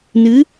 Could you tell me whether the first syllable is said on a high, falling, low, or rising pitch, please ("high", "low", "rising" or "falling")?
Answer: rising